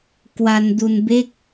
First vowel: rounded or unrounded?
unrounded